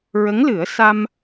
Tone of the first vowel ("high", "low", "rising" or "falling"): rising